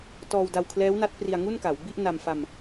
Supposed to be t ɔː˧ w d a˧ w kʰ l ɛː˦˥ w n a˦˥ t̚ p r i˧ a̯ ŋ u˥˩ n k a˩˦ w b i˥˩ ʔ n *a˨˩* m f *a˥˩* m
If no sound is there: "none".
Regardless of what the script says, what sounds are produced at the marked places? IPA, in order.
a˧, a˧

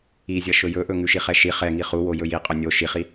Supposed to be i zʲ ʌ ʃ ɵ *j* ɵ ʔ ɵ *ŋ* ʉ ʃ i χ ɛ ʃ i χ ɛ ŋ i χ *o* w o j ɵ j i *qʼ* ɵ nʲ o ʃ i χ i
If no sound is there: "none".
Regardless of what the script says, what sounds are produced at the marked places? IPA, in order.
j, ŋ, u, qʼ

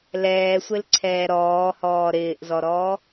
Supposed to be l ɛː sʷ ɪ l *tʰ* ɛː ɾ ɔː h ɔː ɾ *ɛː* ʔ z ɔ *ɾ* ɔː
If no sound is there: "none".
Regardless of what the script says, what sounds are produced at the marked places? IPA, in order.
ǀʰ, ɪː, ɾ

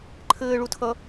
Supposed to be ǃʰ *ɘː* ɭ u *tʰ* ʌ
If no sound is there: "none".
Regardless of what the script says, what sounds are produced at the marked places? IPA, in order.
ɘː, tʰ

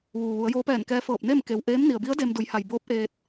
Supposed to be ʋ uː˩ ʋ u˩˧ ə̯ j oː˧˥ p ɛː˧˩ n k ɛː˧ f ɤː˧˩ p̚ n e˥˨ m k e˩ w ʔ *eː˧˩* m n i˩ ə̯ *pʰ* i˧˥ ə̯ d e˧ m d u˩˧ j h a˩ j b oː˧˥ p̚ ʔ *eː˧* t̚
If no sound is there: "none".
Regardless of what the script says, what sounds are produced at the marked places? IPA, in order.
eː˧˥, b, eː˧

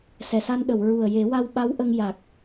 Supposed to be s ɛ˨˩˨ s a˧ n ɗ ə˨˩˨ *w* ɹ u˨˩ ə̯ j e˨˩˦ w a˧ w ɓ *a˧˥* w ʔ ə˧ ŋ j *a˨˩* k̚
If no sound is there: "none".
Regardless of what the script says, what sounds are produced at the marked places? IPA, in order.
w, a˧˥, a˨˩

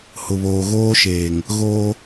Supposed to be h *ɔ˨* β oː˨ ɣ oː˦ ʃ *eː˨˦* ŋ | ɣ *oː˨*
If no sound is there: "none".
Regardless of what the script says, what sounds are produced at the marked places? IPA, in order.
ʊ˨, eː˨, oː˦

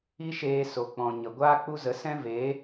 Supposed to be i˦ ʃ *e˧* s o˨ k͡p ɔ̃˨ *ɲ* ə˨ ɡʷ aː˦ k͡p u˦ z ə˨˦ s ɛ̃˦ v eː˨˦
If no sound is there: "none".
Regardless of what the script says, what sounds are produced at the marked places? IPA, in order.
eː˧, ɲ

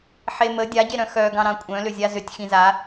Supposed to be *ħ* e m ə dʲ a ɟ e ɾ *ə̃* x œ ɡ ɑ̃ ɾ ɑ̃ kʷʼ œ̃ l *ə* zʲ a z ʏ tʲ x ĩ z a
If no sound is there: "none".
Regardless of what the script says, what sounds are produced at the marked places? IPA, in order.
ħ, œ̃, ʏ

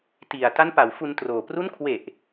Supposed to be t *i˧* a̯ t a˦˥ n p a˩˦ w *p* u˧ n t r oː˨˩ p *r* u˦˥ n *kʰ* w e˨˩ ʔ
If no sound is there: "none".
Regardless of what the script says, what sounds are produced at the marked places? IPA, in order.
i˨˩, f, r, kʰ

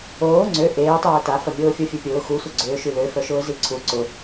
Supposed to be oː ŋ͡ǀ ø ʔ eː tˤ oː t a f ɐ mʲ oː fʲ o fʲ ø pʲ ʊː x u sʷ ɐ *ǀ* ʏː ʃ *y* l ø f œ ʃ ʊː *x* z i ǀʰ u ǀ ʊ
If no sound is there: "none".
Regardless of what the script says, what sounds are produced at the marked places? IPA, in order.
ɡ͡ǀ, y, none

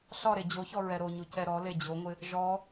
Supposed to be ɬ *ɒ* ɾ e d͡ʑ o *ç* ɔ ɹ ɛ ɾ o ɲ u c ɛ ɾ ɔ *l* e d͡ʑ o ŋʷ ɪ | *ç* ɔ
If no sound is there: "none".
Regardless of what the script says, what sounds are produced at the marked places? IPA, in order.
ɒ, ç, l, ʒ

